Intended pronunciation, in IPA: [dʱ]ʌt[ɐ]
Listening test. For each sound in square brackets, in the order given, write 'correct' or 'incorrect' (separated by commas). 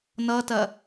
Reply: incorrect, correct